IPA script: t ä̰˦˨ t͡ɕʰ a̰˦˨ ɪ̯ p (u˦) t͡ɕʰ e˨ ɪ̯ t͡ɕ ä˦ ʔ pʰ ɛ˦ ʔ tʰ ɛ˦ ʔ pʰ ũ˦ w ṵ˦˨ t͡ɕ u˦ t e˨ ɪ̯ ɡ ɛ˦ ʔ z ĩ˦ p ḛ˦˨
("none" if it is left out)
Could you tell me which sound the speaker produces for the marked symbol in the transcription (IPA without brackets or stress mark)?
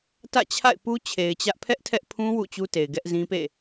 u˦